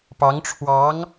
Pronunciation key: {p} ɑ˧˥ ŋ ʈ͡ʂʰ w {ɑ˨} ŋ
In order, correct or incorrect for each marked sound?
correct, incorrect

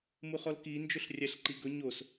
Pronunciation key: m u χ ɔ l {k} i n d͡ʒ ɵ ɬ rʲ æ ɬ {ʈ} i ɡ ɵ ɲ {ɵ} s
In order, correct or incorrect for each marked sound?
correct, incorrect, incorrect

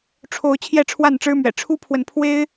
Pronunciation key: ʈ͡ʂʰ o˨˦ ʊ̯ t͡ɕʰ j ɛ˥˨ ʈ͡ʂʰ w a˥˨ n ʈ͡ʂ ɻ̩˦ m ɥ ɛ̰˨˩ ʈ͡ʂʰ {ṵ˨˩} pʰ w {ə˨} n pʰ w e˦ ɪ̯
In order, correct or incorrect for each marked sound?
incorrect, correct

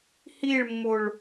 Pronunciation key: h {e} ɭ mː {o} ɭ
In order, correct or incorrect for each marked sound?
incorrect, correct

